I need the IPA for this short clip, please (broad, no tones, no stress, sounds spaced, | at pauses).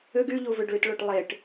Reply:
ʏ ɡ y ʎ u v ʏ ɖ ɭ y t ɭ o ʈ lˠ e ʈ